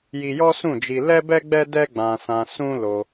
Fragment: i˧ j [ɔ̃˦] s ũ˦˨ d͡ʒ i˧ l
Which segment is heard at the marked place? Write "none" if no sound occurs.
ɔ˦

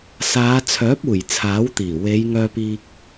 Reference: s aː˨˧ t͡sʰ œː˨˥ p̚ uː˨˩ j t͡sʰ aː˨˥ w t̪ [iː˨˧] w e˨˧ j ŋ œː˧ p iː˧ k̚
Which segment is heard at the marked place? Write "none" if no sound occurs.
iː˨˩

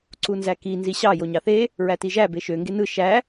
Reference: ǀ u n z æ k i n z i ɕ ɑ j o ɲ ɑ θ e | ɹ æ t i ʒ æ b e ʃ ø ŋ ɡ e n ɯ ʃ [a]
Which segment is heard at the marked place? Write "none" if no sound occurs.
æ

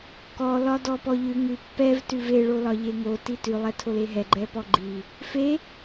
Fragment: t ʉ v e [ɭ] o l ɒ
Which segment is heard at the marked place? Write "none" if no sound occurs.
ɭ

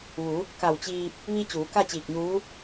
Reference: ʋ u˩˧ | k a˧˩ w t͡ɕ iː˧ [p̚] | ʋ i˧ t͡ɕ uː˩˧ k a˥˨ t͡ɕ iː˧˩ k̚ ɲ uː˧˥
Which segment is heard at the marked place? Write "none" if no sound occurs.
p̚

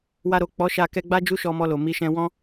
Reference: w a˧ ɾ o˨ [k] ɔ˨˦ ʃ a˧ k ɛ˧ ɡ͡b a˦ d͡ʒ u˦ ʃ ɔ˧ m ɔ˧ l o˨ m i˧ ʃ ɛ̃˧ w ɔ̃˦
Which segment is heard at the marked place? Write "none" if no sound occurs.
k͡p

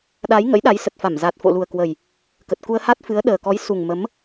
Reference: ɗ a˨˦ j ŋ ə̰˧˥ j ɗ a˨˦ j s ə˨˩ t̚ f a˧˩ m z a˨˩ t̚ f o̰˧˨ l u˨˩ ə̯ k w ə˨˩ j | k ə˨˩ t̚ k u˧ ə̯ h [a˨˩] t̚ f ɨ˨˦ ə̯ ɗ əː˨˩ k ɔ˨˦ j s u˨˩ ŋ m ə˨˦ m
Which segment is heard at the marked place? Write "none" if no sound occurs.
a˦˥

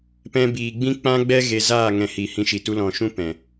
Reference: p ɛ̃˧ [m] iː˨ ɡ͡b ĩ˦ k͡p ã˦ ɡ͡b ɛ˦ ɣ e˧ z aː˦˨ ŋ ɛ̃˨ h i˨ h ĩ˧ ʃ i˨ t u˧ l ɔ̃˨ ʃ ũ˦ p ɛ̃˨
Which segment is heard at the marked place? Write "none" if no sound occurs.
b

